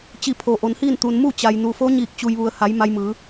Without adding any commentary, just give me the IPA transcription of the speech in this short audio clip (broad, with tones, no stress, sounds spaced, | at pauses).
t͡ɕ i˧˩ pʰ o˩ ʔ o˩˧ n h iː˥˨ n t̪ u˩ n m u˥˨ t͡ɕ a˩ j n u˩ f o˧˥ ɲ iː˧˩ k̚ t͡ɕ u˩ j ʋ u˩ ə̯ h a˩˧ j m a˧ j m ɯː˩˧